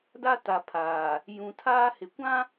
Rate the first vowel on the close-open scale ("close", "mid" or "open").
open